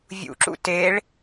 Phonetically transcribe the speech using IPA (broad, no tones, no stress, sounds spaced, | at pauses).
vʲ ṵ ǁ ṵ t e ɭ